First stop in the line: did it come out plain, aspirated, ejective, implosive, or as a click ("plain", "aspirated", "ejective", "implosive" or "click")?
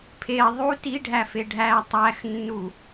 aspirated